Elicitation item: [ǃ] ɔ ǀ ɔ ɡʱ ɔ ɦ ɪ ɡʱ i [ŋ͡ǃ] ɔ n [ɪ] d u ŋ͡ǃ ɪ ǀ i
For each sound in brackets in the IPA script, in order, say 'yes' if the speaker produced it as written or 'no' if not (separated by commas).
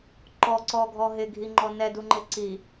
yes, yes, no